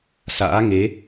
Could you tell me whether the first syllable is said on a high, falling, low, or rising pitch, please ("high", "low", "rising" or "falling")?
rising